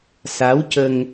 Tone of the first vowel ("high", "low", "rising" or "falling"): rising